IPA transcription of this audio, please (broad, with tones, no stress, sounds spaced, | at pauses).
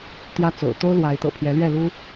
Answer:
t̪ j ä˦ t͡s o̰˨˩ ʊ̯ t̪ o˦ ʊ̯ l w a˨˦ ɪ̯ t̪ ɤ̰˨˩ pʰ j ɛ˨˦ l ɥ ɛ˥˨ l u˦